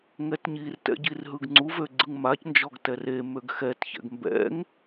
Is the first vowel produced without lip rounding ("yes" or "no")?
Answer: yes